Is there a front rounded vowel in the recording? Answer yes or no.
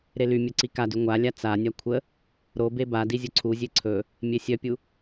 yes